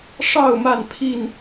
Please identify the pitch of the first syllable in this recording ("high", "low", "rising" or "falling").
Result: falling